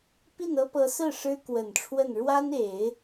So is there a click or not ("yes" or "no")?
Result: no